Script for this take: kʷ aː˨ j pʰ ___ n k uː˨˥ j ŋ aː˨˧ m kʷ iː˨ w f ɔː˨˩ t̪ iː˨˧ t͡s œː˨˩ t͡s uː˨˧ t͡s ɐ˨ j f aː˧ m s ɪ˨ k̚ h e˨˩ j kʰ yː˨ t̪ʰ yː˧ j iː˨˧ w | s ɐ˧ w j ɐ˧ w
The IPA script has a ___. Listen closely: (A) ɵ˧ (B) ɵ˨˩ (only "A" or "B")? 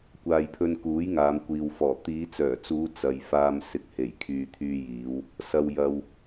A